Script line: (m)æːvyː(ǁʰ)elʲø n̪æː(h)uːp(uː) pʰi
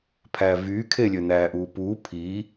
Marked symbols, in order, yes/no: no, no, no, yes

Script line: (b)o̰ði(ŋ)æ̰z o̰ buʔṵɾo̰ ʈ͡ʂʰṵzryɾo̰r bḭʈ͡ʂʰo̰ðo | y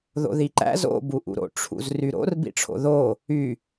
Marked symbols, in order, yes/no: no, no

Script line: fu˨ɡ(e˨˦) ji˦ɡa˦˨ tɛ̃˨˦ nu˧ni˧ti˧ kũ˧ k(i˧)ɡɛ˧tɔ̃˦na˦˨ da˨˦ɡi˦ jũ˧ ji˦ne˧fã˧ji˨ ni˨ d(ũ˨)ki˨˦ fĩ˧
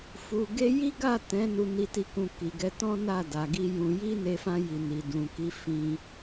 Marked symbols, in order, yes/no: no, no, yes

